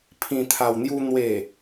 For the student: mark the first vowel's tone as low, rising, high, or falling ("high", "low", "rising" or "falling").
low